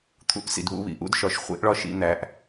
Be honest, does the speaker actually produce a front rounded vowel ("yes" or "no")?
no